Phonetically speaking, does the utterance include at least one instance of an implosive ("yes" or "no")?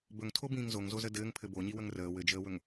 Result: no